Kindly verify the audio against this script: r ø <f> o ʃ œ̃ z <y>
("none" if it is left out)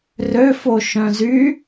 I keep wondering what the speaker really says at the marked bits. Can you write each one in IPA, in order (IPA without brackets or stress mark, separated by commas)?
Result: f, y